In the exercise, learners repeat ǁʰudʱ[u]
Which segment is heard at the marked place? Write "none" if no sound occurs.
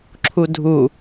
u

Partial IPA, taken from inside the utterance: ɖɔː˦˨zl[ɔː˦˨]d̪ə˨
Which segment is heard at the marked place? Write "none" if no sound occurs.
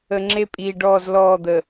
ɔː˦˨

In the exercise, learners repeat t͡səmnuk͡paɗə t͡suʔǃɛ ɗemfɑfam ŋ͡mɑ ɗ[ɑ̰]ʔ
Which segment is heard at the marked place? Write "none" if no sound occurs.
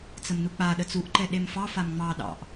ɑ̰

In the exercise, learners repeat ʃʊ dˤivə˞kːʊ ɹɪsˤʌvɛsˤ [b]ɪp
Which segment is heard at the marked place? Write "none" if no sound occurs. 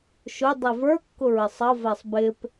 b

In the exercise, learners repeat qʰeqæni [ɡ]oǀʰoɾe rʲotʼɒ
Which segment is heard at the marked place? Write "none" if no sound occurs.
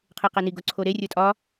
ɡ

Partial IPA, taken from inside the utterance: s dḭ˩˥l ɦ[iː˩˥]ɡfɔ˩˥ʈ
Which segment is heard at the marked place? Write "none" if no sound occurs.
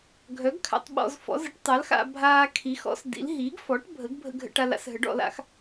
iː˩˥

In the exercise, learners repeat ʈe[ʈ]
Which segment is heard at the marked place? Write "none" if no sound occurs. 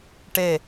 none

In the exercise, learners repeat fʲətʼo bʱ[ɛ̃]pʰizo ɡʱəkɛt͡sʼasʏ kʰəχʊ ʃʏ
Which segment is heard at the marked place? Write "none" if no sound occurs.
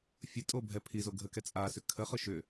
ɛ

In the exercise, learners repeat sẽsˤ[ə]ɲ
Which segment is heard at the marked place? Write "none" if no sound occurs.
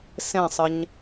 ə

